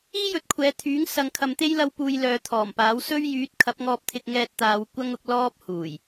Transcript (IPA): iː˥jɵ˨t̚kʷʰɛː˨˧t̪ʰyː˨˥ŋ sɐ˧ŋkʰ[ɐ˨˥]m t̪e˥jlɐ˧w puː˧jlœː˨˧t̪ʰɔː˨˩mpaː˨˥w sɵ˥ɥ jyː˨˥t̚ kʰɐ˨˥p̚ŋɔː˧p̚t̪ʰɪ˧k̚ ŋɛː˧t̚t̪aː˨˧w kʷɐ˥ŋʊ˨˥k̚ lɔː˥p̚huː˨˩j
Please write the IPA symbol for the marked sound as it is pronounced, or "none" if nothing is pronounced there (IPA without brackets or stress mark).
ɐ˧